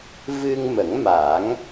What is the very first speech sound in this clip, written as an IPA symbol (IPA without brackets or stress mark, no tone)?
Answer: v